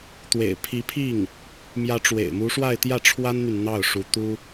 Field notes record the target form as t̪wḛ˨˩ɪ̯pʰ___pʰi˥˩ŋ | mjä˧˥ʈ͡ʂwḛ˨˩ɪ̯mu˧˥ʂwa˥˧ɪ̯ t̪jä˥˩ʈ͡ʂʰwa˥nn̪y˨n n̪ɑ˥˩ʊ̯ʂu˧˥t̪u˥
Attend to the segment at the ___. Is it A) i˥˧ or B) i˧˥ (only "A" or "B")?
B